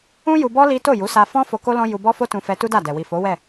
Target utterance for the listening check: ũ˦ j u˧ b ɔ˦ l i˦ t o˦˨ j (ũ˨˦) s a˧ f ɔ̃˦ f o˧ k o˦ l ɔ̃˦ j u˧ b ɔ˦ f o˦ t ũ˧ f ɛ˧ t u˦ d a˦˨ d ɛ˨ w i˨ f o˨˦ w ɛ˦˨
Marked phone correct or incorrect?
incorrect